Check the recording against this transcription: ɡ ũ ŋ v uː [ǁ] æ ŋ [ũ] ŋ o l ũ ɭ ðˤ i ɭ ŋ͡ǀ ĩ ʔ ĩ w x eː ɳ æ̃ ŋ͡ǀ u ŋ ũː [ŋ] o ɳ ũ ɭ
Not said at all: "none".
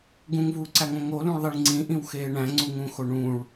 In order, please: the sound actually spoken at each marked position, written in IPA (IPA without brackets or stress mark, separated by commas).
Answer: ǀ, õ, x